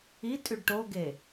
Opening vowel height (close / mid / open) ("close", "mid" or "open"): close